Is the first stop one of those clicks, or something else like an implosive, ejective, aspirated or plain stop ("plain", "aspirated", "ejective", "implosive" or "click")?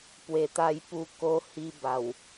plain